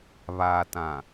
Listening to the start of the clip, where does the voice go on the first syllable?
low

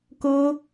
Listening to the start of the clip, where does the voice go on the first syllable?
high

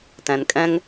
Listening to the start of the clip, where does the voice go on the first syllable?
low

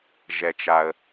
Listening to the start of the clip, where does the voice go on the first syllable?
low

